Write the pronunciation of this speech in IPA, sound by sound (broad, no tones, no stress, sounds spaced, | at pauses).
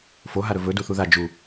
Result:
f o ɦ a ɾ ɵ v ɵ d u θ u ð a d͡ʒ u